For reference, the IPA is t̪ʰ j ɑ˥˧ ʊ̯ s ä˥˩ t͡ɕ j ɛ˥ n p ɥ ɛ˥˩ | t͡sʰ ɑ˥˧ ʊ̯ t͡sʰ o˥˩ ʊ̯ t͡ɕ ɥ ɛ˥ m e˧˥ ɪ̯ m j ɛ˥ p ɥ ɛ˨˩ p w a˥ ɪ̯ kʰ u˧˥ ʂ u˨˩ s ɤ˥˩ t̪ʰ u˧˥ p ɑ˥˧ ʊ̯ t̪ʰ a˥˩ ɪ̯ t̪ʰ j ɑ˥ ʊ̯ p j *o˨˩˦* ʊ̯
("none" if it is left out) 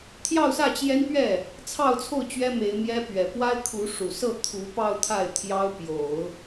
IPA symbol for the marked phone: o˨˩˦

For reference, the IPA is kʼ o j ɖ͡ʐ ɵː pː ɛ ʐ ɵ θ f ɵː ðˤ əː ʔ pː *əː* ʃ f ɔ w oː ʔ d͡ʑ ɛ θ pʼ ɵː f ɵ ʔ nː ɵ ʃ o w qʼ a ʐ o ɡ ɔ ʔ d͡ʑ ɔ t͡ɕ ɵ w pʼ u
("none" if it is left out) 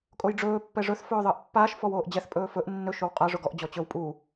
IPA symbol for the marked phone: aː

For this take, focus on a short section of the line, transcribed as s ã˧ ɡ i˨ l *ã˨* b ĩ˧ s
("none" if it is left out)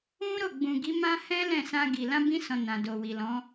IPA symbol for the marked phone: ã˧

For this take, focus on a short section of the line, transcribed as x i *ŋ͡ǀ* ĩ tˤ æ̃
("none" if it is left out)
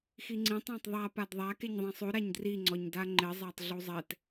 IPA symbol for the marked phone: ŋ͡ǀ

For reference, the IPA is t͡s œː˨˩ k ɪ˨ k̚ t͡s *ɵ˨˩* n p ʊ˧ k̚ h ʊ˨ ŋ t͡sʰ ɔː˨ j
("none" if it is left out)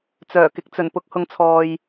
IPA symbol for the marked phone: ɵ˨˩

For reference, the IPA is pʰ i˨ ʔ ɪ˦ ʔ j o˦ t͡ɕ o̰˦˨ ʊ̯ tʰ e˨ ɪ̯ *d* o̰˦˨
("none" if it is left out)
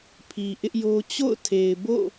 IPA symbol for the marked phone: b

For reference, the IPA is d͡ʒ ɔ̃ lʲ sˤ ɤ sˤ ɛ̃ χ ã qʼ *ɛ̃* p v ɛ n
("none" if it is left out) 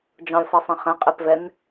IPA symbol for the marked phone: ɛ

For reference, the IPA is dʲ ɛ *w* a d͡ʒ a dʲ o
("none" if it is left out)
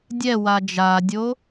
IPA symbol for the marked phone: w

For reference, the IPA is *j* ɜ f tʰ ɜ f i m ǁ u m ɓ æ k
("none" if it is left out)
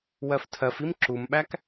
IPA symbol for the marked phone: w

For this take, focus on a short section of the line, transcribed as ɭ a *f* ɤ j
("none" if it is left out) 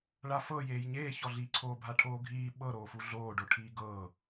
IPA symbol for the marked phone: f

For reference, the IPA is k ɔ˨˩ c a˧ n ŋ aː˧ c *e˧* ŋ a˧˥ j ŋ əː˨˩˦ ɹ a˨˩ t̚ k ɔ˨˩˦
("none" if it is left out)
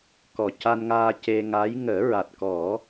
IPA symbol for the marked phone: e˧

